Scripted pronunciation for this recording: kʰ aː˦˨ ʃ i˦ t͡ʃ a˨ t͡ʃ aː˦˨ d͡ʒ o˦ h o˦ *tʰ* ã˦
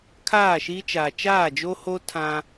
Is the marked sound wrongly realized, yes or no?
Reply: no